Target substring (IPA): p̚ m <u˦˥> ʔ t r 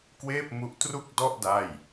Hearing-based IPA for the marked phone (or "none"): u˦˥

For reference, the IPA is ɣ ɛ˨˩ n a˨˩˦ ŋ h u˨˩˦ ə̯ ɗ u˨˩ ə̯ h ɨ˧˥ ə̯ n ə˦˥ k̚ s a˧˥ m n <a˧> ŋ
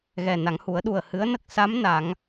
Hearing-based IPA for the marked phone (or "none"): a˨˩˦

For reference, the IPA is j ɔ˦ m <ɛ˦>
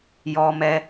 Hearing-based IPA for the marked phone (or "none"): ɛ˦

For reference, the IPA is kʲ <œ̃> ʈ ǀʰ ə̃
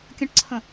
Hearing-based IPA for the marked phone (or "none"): ə̃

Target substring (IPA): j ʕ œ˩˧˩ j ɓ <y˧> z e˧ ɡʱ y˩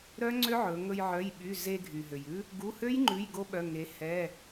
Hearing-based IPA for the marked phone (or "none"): y˩˧˩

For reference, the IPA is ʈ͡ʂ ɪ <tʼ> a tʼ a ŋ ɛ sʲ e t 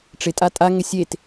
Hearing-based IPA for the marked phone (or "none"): tʼ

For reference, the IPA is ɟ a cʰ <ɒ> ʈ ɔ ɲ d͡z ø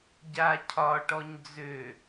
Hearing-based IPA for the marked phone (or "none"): ɒ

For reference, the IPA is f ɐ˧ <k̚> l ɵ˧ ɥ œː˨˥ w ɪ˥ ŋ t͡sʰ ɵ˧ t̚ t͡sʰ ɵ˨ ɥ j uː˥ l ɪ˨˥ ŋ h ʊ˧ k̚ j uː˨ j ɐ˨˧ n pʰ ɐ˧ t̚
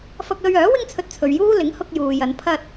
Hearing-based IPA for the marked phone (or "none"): k̚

